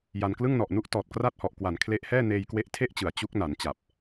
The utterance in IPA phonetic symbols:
ja˧n klɯ˥˩ŋnɔ˨˩ʔnu˥˩ʔ tɔː˨˩t̚kra˥˩t̚hɔ˨˩ʔkwa˩˦n kʰle˦˥ʔhɛː˥˩ neː˧jkwe˦˥ʔtʰe˥˩ʔt͡ɕɯ˩˦a̯ t͡ɕu˦˥k̚na˩˦n t͡ɕa˨˩p̚

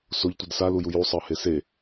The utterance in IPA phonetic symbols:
soʎtʷid saluju jusˤɤhe se

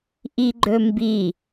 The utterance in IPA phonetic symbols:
ʔiɡ͡ǃɵmbi

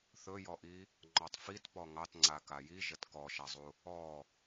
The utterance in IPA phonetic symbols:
θɵjɔʔi | ŋ͡ǃɔtˤfit pɔŋɑtŋ͡ǀa kajiʒət kɔʃazˤu | ɔ

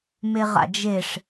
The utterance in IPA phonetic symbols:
meʁa̰d͡ʒeʂ

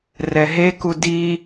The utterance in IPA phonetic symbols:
rɛɦeku di

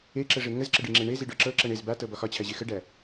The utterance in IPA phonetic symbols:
eǁəʐe ŋəzǁəɖiŋ͡ǁe ɳeziɖɔ ǁɤǁɤɳ ez batɤbɒ xɒt͡ɕʰæʑe xəɖæ

